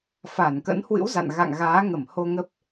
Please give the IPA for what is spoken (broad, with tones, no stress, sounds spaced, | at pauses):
f a˧˩ n k ə̰˧˥ n h w ɨ̰˧˥ w z a̰˧˨ n ɣ a̰˧˨ ŋ ɣ aː˨˦ ŋ ə˧˩ m h o˧ ŋ ə˦˥ p̚